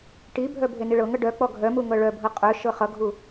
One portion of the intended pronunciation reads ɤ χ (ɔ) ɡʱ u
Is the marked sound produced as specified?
no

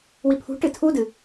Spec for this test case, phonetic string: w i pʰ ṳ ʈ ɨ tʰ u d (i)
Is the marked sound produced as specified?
no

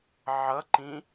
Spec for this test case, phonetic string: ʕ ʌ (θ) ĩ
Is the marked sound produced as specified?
no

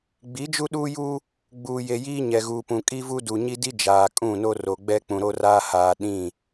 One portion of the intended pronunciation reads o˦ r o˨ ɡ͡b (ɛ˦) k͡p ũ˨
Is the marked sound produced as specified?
yes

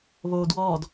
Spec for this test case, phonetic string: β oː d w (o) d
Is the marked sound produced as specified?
no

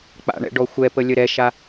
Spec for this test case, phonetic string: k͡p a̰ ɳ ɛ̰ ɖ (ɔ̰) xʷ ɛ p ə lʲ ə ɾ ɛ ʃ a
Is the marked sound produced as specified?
no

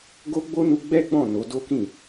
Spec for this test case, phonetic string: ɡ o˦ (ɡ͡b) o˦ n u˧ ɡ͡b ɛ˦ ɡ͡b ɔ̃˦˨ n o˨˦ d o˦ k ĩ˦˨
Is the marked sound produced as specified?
yes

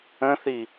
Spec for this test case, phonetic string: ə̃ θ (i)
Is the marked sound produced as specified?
yes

